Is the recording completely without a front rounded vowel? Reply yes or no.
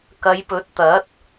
yes